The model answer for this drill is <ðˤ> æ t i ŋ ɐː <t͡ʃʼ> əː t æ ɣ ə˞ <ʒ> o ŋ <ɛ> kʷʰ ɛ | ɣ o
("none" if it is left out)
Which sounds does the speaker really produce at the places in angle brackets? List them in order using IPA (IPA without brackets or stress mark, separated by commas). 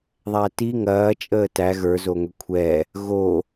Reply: ðˤ, t͡ʃʼ, z, ø